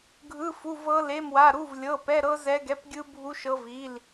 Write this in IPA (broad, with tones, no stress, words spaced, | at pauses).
ɡʱɯ˧˥˧ fu˧˥˧vɤ˦˥le˧˥˧mwa˧˥˧ ɾu˧˥˧vlʲɤ˧˥˧ pɛ˧˥˧ɾɤ˦˥ zɛ˦˥ɡɛ˧˥˧p ɡʲɯ˦˥bʱu˦˥ʃɤ˦˥vi˧˥˧l